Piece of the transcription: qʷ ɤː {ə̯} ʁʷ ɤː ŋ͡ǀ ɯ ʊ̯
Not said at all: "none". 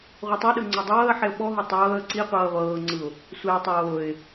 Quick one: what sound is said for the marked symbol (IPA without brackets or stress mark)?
ə̯